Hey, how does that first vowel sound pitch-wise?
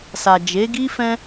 low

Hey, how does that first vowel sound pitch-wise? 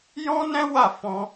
high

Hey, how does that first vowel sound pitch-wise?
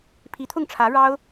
rising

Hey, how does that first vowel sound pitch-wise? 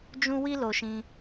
high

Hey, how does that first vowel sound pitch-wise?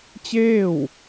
falling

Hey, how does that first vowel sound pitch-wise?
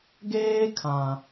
high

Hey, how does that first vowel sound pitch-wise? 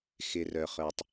low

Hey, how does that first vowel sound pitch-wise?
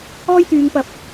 high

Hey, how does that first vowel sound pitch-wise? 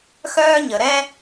high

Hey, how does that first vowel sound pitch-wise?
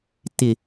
low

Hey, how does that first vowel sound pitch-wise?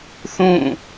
falling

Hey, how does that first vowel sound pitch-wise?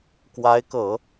rising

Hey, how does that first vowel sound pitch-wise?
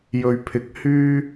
low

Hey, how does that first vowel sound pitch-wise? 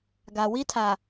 low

